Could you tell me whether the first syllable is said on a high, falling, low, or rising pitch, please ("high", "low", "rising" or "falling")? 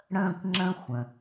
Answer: falling